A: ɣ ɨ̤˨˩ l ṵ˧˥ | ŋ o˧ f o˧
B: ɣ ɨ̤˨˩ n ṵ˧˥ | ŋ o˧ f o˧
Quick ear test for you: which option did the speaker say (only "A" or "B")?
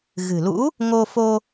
A